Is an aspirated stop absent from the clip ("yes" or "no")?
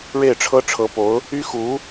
no